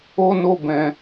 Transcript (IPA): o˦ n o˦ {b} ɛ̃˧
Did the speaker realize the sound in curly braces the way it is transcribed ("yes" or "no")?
yes